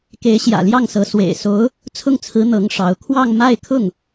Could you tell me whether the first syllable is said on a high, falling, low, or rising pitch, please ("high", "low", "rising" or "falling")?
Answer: rising